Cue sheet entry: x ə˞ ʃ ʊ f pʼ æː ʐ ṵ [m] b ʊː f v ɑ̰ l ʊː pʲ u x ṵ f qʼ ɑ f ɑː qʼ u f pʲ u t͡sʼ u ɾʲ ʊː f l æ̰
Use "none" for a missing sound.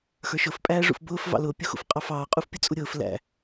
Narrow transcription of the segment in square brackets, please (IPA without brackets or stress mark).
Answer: f